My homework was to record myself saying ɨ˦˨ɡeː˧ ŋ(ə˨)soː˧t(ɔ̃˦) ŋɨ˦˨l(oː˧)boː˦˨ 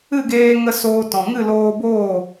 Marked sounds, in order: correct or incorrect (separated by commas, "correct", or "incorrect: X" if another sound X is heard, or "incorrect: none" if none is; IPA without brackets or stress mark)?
incorrect: ə˧, incorrect: ɔ̃˨, correct